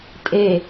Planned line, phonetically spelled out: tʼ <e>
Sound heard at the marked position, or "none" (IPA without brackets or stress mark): e